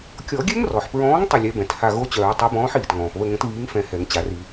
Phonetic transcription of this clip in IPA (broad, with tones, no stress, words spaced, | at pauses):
kʲɔ˨˩˦ɡʲɛ˦˥ŋrɔ˩ħpɹɔ̃ː˨˥ŋ tˤə˦˨lʲɛ˨˥ bɛ̃˩tha˦˨ ɣo˦˥t͡ɕœː˨˩˦ tˤo˨˥bɔ̃ː˨˥ħiː˩tŋɔ̃ː˩p βə˦˨ŋə̃˨˥tβiː˨˥ŋfɛ̃˨˩˦ hɛ˨˩˦ŋt͡ɕa˨˩˦ri˨˩˦